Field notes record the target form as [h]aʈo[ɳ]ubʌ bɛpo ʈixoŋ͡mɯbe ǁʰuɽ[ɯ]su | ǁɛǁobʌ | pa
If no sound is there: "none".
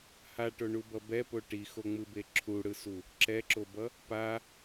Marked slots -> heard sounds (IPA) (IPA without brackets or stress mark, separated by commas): h, ɳ, ɯ